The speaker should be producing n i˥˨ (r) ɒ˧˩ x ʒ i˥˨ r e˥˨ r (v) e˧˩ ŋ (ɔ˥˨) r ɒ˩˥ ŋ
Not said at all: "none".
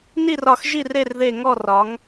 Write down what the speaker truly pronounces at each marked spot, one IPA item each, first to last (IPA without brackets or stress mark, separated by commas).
r, ð, ɔ˥˨